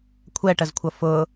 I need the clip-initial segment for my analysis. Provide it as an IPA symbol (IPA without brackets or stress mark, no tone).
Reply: kʷʰ